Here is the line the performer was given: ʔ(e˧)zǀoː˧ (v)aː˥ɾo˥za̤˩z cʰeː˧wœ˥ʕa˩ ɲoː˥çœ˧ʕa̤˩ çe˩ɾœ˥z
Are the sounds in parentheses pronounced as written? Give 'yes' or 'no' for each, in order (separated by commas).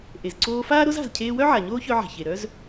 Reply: no, no